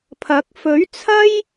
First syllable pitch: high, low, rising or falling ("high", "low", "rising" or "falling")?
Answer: rising